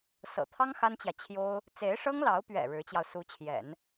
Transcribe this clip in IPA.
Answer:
s ɤ̰˨˩ t̪ʰ ɑ˥ ŋ x a˥ n t͡ɕ j ä˨ t͡ɕʰ j o˥ ʊ̯ | t͡s e˧˥ ɪ̯ ʂ ɤ˥ ŋ l ɑ˧˥ ʊ̯ p ɥ ɛ̰˨˩ ɻ ɻ̩˧˥ t͡ɕ j ɑ˧ ʊ̯ s u˧˥ t͡ɕʰ j ɛ̰˨˩˦ n

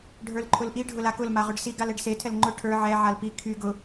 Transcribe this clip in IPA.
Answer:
ɖʱ ə˞ l ǃʰ ʊ l ʔ i ɖʱ ʊ l a k ʊ l m a ʁ ʊ ɖ s i ɡ a l ɛ ɖ s e tʰ ɛ l ŋ͡ǃ ʊ ʈʰ ə˞ ʕ ɛ ʕ a l p i kʰ y ɡ ʊ

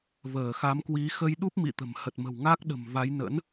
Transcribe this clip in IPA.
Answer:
v əː˧˩ x a˨˦ m k w i˨˦ x ə˧ j ɗ u˦˥ p̚ m ḭ˧˨ t̪ ə̤˨˩ m h ə˨˩ t̚ m ə̤˨˩ w ŋ a˦˥ k̚ ɗ ə̤˨˩ m v a˨˦ j n ə̰˧˥ n

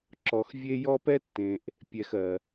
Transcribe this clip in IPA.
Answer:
ǁ ɔ˨ x vʲ e˦ j ɔ˦ p ɛ˦ tː ẽ˩ ʔ | pʲ ɛ˨ x ɜ˩

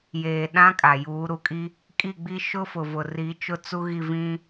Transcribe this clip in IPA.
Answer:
j eː˨ ɗ ã˦ kʼ a˨ j uː˨˦ ɾ u˨ kʼ i˦ | kʼ i˦˨ ɡ͡b i˦ ʃ ʊ˦ f ʊ˨ v ʊ˨ r i˨˦ t͡ʃ ʊ˦ t͡s u˦ ɣ i˦˨ v ĩ˦

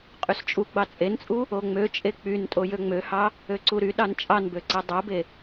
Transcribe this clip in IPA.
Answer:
qʼ y s t͡ʃʼ u ɡ͡b ɑ t͡sʼ e n t͡sʼ u | o ŋ͡m ø t͡ʃʼ e k͡p y n tʼ o j ø ŋ͡m ø h ɑ | ø ǀ u ɾ y ɗ ɑ n t͡ʃʼ ɑ n b ø ǀ e dˤ o b e

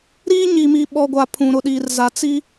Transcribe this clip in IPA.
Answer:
ɾ iː˦ ɲ i˨ m i˨ ɓ ɔ˨ ɡʷ a˨ pʰ ũ˨ ɾ ʊ˨ ɗ iː˨ r z a˨ t͡s i˦

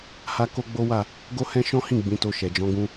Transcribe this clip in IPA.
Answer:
h a˦ k o˦ ɡ͡b o˦ w a˦˨ | ɡ o˦ h ɛ̃˦ ʃ ɔ̃˦ h ĩ˦˨ ɡ͡b ĩ˨˦ t o˧ ʃ ɛ˨ d͡ʒ ɔ̃˨˦ ɡ ũ˧

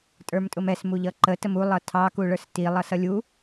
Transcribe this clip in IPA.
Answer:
tʼ ə˞ m tʼ ʊ m ɛ s m u ʎ ʌ ǃ ə t ə m u lˠ ʌ tʰ ɑ k u ɭ ə˞ s t i lˠ ʌ s ʌ lʲ u

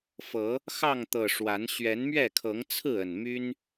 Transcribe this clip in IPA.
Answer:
f ɤ˨˦ | x ɑ˥˨ ŋ t̪ ɤ˨˩ ʂ w a˨˦ n ɕ ɥ ɛ˨˦ n m ɥ ɛ˥˨ kʰ ɤ˨˦ ŋ t͡sʰ ɹ̩˥˨ ə˨˩ n m y˦ n

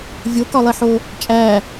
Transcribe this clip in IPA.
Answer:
vʲ o k ɒ lˠ i ħ o | t͡ʃʼ æ

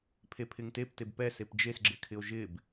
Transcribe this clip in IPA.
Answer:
pʰ e pʰ ɪ ŋ t e p t e b p ɛ s e p d͡ʒ e s ɡ͡ǁ ɪ kʰ ɪ o̯ ʒ ɪ b

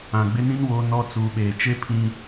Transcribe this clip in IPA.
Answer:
ã˨ ɡ͡b ɪ˦ n ĩ˦ n w o˦ n ɔ˦ t͡s uː˨ ɓ eː˨ t͡ʃ e˦ pʰ ĩ˦

